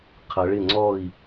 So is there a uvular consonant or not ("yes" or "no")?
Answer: yes